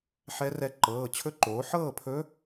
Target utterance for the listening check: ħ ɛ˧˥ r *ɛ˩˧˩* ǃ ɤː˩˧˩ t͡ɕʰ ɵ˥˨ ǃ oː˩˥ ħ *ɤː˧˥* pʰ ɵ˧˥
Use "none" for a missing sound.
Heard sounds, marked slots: ɛ˧˥, ɤː˥˨

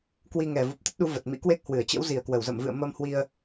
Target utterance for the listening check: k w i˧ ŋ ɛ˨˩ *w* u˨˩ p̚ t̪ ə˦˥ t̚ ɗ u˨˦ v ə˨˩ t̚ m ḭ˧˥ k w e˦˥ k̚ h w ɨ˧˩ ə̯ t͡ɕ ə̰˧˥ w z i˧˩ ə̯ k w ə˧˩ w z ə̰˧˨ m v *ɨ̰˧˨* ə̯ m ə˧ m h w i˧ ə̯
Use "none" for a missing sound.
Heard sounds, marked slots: v, ɨ̰˧˨

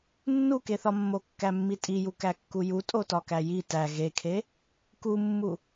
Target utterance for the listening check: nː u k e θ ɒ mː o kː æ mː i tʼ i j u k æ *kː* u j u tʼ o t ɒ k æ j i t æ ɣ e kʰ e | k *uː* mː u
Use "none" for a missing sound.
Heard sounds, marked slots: kː, u

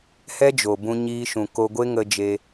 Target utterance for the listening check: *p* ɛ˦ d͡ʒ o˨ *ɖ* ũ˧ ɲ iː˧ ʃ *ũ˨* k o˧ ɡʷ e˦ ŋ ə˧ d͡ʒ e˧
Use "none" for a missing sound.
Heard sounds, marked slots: h, b, ũ˨

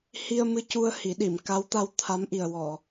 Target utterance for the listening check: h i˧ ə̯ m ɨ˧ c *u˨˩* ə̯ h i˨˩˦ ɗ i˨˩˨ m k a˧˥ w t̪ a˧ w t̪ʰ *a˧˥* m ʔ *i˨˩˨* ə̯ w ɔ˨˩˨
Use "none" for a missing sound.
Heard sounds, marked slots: u˧, a˧˥, i˨˩

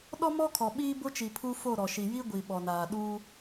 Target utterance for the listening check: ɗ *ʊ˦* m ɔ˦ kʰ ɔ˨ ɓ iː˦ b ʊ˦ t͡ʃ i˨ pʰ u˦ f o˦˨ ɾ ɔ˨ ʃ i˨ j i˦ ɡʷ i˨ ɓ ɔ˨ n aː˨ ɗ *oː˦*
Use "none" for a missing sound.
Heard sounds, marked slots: ɔ˦, uː˦

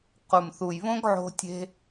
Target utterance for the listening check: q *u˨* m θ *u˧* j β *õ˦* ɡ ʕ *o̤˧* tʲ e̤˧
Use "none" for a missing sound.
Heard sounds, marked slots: u˨, u˨, õ˦, o̤˧

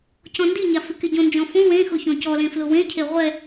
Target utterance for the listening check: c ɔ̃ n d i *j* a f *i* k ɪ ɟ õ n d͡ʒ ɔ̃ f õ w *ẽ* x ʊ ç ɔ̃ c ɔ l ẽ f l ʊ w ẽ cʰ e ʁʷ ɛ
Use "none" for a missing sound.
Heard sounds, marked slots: ɲ, ɪ, ẽ

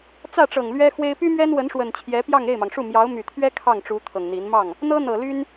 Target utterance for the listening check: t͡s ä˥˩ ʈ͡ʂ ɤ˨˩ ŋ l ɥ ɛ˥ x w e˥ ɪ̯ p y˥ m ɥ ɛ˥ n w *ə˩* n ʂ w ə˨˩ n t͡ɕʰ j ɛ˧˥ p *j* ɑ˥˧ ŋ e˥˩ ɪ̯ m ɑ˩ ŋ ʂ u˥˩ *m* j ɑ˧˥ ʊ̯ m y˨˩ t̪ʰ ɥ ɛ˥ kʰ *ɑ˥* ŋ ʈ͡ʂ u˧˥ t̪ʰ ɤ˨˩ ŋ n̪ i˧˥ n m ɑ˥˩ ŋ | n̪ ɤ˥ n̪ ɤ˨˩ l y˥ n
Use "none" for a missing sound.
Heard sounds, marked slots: ə˧˥, j, m, ɑ˥˩

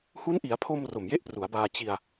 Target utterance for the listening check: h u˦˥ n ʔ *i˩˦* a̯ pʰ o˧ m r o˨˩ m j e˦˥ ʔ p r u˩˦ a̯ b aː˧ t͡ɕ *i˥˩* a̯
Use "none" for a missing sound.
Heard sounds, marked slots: i˩˦, i˧

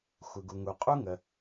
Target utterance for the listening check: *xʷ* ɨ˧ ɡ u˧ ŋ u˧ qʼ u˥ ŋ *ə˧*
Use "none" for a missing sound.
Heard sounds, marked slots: xʷ, ə˧

